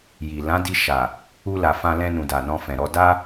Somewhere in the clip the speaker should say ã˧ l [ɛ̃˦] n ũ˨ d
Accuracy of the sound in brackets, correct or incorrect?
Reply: incorrect